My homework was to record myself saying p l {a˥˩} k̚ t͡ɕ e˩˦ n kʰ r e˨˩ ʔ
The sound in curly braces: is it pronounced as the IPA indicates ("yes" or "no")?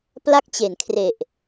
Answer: yes